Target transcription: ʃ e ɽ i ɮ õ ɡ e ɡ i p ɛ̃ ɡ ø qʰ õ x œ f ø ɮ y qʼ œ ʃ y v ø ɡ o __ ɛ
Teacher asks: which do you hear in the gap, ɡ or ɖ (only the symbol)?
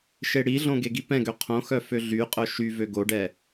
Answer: ɖ